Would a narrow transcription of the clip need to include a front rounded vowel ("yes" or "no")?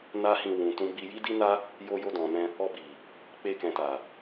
no